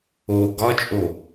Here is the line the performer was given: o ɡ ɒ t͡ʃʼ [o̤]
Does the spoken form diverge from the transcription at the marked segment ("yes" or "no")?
yes